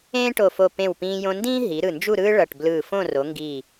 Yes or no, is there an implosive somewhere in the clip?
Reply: no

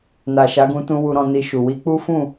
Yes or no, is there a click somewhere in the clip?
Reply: no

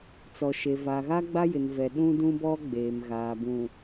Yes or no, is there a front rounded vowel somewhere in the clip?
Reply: no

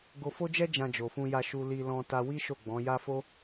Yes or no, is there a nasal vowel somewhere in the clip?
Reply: yes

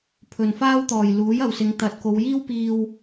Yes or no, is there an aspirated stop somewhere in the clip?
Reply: yes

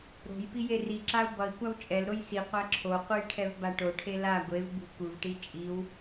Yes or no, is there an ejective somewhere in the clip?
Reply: yes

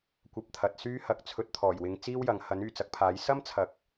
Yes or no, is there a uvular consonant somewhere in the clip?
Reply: no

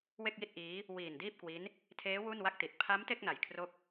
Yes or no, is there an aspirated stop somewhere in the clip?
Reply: yes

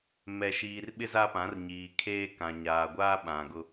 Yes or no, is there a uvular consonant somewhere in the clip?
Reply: no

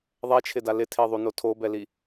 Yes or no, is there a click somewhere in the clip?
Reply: no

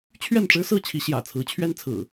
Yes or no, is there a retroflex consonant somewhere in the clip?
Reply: yes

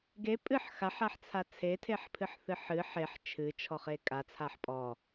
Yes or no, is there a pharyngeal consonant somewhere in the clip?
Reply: yes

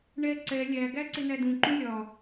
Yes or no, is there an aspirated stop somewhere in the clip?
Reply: no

